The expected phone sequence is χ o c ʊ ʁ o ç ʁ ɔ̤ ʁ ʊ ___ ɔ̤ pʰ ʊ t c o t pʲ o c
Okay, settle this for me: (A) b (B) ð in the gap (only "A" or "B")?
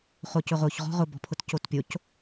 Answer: A